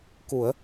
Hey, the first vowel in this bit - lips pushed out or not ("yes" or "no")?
yes